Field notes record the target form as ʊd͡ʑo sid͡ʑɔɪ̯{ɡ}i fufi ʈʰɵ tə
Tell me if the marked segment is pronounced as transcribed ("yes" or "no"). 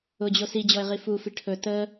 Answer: no